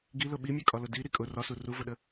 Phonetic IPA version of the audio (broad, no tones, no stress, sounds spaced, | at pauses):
ɡ i l ʊ ɓ i mʲ ɛ kʼ ɒ l ʊ d i ɾ i kʼ ʊ r ɒ s u r u v ʊ ɗ ə